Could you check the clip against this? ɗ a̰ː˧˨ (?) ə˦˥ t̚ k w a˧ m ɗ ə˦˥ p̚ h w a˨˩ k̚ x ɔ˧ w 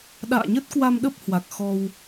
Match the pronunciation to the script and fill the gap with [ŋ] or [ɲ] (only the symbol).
ɲ